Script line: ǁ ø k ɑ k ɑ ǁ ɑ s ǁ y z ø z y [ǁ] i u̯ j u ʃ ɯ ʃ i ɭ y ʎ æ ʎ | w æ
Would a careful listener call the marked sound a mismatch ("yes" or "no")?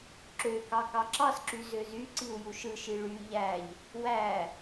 yes